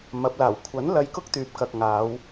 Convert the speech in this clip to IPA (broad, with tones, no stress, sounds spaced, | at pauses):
m ɐ˨˥ p̚ l aː˨˩ w kʷʰ ɐ˨˥ n l ɐ˧ j k ʊ˥ k̚ t̪ yː˨ p̚ k ɐ˨ k̚ ŋ aː˨˧ w